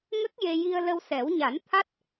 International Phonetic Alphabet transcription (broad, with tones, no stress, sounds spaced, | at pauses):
ŋ ə˦˥ k̚ j e˧ j i˧ ə̯ l ə˧ w s ɛ˨˩˦ w ɲ a˨˩˦ n t̪ʰ a˦˥ t̚